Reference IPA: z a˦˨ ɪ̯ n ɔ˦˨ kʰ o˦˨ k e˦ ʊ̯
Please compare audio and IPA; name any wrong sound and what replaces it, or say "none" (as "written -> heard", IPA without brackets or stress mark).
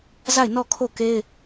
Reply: ʊ̯ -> ɪ̯